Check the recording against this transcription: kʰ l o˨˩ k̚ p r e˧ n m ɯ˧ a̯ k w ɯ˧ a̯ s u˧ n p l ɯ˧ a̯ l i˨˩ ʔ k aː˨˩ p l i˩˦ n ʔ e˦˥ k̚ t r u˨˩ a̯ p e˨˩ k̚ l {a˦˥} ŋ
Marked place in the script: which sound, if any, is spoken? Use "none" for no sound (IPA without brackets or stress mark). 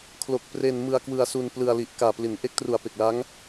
a˦˥